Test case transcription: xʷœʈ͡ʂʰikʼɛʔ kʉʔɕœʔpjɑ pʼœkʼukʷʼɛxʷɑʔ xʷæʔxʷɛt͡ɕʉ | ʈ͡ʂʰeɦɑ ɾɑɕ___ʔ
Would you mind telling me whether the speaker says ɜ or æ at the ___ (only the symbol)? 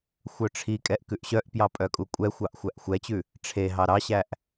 æ